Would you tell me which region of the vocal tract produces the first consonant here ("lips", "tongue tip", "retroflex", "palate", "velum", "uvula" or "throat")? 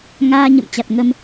velum